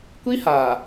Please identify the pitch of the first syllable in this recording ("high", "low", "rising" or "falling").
high